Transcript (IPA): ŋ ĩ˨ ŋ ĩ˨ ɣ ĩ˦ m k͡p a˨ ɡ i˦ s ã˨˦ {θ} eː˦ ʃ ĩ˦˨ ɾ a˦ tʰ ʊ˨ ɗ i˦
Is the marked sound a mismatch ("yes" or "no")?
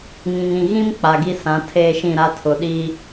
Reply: yes